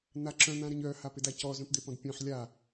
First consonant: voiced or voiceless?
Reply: voiced